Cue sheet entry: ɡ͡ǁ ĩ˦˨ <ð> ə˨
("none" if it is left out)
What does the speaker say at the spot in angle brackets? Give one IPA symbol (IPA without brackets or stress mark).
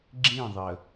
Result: ðˤ